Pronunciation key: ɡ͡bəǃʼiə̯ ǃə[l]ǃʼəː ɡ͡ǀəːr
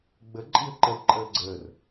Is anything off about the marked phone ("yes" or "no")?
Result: no